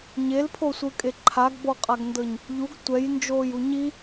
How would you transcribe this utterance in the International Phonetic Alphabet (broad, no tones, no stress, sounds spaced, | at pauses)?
ɲ e l pʰ o sʷ ɯ kʼ e ǃʰ a ɡ b ɔ qʼ a ɡ n d ɤ ɲ | ʎ u ɡ tʷ ɛ j n d͡ʒ oː j u ɲ i